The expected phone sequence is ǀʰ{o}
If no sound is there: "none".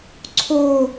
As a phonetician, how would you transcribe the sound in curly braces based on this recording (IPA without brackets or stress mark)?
o